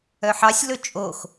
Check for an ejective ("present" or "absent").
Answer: present